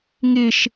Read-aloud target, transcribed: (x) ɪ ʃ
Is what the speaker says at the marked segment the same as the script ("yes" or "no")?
no